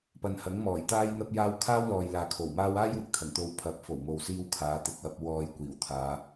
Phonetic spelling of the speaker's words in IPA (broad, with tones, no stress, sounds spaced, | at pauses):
p ɐ˨ n h ɐ˨˥ ŋ m ɔː˨˩ j t̪ aː˥ j n̪ ɐ˥ p̚ j aː˥ w kʰ aː˥ w l ɔː˨ j l aː˨ kʰ o˨˩ w m aː˥ w aː˥ j w ɪ˨ k̚ t̪ʰ ɐ˨˩ ŋ t̪ o˧ w pʰ ɐ˨˥ p̚ f o˨˩ w m o˨ w s iː˧ w kʰ aː˨˧ t̪ ɪ˨ k̚ w ɐ˧ p̚ w ɔː˧ j kʷ iː˨˩ w t̪ʰ aː˨˧